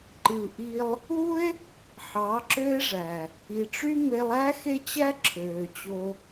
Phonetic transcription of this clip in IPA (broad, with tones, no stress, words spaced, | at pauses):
ǃɯ˨ʔi˧lˠ | u˦e̯ | ħɑ˨˦ǁø˦e̯ʐæ˨ | i˨ʈ͡ʂy˦ me˧lˠæ˦ xe˦t͡ɕæ˦ǁʰøː˨ t͡ɕo˧